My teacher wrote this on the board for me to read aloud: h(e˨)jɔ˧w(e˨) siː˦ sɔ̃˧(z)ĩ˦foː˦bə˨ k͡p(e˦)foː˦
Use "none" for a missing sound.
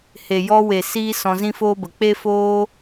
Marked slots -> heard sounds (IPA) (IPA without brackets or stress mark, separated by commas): e˨, e˨, z, e˦